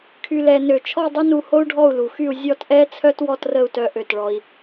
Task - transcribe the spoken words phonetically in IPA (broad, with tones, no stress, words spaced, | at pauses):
kʰy˧lɛ˧nø˧˩ t͡ʃʰɔ˥˧dˤə˥nu˧ ho˥u̯ɖʱɔ˥˧u̯lu˩˧xy˥˧u̯ zʲɔ˥˧tʔɛ˥t͡sʰœ˥t wɔ˥˧trə˥˧u̯tœ˧ ʔø˧˩tɭɔ˧i̯